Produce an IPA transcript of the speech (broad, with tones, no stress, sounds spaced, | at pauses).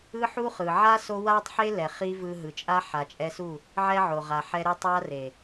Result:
ɯ˦ ħ u˦ χ ɯ˨ ʕ a˦ s o˧ w a˦ tˤ ħ e˦ l ɛ˨ χ i˦ v ɯ˧ ɦ ɯ˨ t͡ʃʼ a˦ ħ a˨ t͡ʃʼ ɛ˧ s u˦˨ | ʕ ɛ˦ ʕ o˨ ʁ a˨ ħ ɛ˧ ɾ e˧ tˤ a˧ r e˨